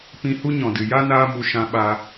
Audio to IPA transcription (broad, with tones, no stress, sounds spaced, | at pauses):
p ĩ˧ h u˦ ɲ ɔ̃˨ d ɨ˨ j a˦ n aː˦ m u˧ ʃ ã˧ ɓ a˧